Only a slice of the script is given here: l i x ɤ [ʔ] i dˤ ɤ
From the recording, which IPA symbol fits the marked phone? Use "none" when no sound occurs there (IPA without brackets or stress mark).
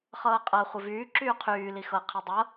qʰ